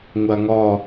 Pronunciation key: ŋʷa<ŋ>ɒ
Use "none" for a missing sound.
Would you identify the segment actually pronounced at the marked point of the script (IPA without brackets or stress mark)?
ŋ